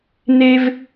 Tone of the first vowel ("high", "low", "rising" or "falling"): high